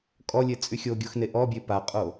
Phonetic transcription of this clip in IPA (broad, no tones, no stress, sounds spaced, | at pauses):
kʼ ɔ lʲ e t͡sʼ y xʲ o ɡʲ o x n e ʔ ɔ bʲ e p a qʼ o